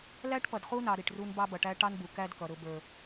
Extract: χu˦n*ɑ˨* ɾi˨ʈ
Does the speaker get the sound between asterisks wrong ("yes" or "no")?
no